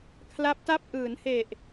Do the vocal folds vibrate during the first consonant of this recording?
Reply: no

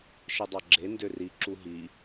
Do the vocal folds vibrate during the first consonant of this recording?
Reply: no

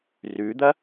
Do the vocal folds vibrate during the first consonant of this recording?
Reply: yes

